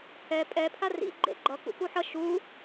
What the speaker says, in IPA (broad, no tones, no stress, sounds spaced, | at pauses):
h ɛ pʼ ɛ pʰ a r ḭ ɡ͡ǃ ḛ ɡ͡ǃ ʌ k ṵ k u ħ ʌ ʃ u